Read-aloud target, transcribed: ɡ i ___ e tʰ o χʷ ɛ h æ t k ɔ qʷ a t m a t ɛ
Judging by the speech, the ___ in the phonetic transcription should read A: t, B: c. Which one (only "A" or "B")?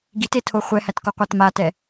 A